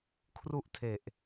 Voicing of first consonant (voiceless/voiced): voiceless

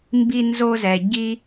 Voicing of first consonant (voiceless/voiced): voiced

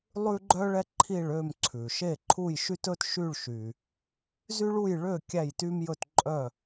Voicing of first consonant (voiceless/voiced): voiced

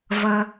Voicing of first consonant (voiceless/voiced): voiced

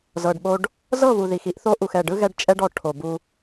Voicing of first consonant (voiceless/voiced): voiced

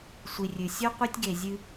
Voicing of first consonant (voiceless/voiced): voiceless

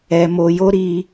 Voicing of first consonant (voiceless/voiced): voiced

